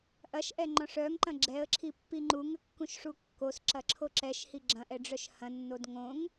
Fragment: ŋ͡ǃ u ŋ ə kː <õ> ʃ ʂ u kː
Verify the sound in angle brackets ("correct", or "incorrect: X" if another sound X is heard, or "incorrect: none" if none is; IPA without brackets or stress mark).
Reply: incorrect: ũ